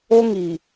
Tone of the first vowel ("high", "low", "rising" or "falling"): high